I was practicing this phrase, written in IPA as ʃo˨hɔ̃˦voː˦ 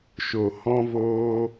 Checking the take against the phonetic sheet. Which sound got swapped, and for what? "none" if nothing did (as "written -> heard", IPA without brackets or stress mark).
none